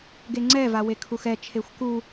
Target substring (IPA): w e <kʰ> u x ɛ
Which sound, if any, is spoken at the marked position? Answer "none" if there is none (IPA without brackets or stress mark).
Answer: kʰ